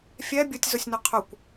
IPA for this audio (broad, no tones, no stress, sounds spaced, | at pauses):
fʲ ɛ bʲ ʊ tʲ z ʊ sʲ n ʊ qʰ ʊ kʷ